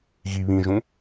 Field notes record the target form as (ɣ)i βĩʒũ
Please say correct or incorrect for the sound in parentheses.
correct